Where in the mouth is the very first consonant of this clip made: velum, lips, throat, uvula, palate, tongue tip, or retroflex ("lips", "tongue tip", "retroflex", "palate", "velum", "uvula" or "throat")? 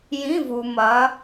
palate